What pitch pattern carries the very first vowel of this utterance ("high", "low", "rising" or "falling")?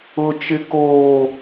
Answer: high